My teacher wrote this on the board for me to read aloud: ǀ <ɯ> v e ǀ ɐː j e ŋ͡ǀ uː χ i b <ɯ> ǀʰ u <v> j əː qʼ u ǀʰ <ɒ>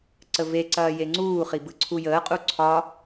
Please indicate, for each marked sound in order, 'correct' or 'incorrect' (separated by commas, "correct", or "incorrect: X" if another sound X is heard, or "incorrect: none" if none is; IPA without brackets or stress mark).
incorrect: ə, correct, incorrect: none, correct